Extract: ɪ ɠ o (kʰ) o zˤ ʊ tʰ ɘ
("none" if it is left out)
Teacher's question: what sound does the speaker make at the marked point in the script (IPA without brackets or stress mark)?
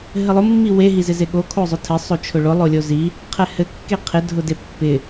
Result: kʰ